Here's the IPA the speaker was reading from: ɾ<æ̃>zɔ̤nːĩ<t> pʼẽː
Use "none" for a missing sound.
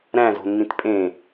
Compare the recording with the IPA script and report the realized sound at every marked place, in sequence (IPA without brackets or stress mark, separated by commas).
æ̃, t